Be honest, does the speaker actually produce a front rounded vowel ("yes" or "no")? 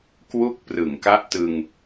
no